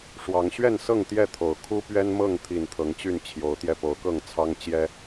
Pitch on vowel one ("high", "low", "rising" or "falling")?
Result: rising